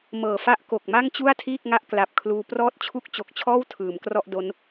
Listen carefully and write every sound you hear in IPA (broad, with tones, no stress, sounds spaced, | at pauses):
m ɤː˨˩ f a˥˩ ʔ k o˨˩ k̚ m a˥˩ ŋ t͡ɕ u˥˩ a̯ tʰ iː˥˩ k̚ ŋ a˥˩ ʔ k l a˨˩ p̚ kʰ l uː˧ p r ɔː˦˥ t̚ t͡ɕʰ u˦˥ k̚ t͡ɕ o˨˩ k̚ t͡ɕʰ ɔː˥˩ w tʰ ɯː˩˦ m k r ɔ˥˩ ʔ d o˦˥ n